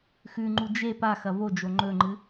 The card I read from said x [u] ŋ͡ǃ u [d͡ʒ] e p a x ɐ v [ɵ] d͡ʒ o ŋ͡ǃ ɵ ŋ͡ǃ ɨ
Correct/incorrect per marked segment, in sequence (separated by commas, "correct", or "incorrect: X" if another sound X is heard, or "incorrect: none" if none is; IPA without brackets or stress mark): incorrect: ʉ, correct, incorrect: o